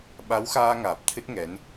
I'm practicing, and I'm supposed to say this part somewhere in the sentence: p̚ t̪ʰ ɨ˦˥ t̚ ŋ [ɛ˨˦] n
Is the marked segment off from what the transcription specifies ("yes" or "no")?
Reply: no